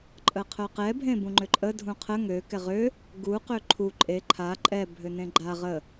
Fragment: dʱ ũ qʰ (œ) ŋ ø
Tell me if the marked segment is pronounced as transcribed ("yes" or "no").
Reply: no